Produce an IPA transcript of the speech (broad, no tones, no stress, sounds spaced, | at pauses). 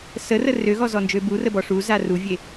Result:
s ə r ə r ø ɣ ɔ z ɔ n d͡ʒ ø b u r ə b ɔ ʂ u z a r u vʲ e